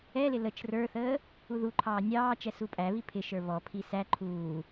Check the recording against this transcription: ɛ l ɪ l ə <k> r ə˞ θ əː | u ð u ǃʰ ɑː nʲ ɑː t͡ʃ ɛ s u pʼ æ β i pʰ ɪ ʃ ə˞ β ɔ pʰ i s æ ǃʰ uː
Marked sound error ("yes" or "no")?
yes